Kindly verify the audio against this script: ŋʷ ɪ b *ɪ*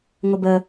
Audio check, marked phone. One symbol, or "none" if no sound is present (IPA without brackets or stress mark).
ə